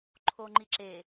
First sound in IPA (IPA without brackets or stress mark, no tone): ǃʰ